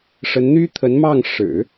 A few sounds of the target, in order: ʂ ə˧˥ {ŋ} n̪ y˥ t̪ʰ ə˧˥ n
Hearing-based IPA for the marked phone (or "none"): n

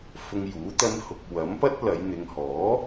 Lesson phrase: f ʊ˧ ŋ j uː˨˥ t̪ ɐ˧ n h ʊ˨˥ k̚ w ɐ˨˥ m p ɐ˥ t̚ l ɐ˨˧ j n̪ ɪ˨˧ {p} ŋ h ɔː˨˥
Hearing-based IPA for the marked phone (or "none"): none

